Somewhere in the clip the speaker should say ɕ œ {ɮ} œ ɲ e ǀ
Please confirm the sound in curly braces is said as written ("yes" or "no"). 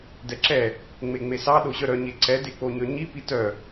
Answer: no